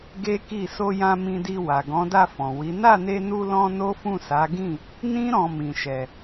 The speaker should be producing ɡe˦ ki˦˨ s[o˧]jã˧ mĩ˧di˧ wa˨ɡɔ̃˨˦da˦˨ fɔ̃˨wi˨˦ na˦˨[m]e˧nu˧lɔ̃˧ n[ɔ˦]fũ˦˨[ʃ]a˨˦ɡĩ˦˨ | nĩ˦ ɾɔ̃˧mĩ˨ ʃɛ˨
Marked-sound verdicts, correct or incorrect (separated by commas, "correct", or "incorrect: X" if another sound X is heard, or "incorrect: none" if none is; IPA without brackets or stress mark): correct, incorrect: n, incorrect: o˦, incorrect: s